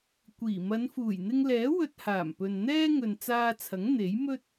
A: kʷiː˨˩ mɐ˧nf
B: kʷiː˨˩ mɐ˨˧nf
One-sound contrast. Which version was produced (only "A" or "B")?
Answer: B